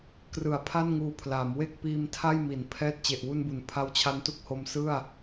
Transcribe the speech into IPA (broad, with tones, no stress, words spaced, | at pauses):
krɯ˨˩a̯pʰa˥˩nŋuː˧pʰlaː˩˦m we˥˩k̚piː˧m tʰa˥˩jmi˩˦n pʰɛː˥˩t̚ t͡ɕe˨˩ʔwu˧nbu˩˦n pʰa˦˥wt͡ɕʰa˦˥ntu˦˥k̚ho˧m sɯ˥˩a̯